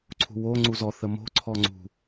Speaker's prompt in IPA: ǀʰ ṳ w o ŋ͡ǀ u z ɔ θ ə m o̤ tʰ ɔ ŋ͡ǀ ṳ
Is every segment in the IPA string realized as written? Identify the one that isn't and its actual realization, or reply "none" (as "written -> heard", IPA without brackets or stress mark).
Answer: tʰ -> ǀʰ